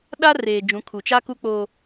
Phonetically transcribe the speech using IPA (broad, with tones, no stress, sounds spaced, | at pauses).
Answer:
ɗ a˦ r eː˨ d͡ʒ ũ˨˦ kʰ u˨ t͡ʃ a˦ k u˦ k͡p o˦